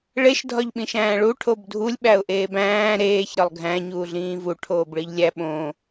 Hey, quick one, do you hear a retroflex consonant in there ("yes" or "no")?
yes